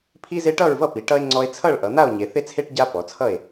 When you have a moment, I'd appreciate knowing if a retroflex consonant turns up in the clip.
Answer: yes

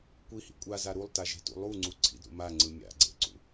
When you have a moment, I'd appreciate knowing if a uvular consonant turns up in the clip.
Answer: no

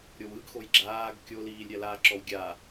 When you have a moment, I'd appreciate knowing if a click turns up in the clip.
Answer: yes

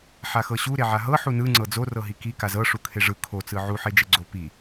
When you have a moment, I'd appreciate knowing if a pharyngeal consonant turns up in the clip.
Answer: yes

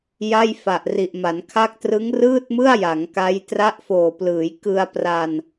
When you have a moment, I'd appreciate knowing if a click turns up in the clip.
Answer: no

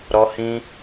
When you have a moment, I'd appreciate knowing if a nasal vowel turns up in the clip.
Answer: yes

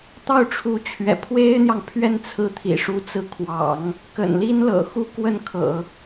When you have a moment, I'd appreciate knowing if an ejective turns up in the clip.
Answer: no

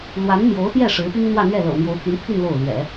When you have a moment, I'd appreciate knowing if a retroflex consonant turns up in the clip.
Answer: yes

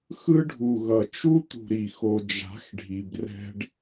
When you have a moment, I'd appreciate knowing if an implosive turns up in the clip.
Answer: no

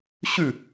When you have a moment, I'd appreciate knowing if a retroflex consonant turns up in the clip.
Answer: no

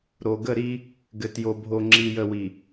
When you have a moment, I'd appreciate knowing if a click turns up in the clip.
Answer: yes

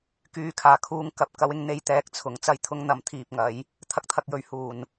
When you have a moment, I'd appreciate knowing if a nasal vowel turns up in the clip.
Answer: no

